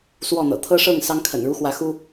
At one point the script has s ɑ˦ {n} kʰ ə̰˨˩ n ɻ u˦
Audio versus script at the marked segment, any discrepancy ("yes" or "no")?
yes